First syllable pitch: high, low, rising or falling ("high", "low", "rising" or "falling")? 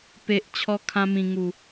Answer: low